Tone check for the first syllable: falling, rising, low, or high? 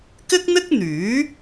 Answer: high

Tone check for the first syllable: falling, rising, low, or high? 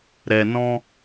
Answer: low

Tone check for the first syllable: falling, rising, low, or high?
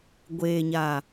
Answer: low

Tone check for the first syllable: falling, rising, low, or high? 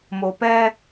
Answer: low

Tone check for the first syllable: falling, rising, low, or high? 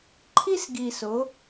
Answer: high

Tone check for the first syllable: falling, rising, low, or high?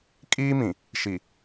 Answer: high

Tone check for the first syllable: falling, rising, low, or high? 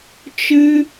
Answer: high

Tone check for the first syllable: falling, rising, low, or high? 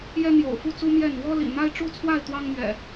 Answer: high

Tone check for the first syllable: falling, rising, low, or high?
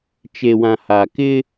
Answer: low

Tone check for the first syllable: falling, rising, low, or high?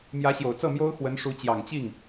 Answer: rising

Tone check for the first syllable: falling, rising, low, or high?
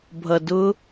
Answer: low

